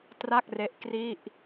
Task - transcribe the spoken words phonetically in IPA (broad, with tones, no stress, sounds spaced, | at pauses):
t r a˥˩ k̚ r e˦˥ ʔ k r i˥˩ ʔ